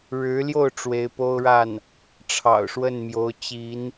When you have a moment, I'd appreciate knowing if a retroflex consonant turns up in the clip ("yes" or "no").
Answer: yes